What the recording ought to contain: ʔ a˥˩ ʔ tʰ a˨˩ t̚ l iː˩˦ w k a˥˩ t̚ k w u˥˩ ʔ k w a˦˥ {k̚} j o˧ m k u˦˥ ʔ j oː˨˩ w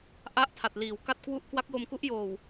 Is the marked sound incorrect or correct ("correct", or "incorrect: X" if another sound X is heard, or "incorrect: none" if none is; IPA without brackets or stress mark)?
correct